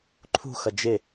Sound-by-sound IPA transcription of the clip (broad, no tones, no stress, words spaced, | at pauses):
ǃʰṳxʌ d͡ʒɪ